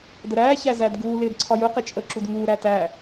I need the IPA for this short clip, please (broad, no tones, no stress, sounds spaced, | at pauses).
d ə ɾ æː ç æ z æ d ɡ uː l ɪː d ǀʰ ɒ j ʊ q ɪ t͡ʃʼ ə ǁ u d ŋ uː ɾ æ t æ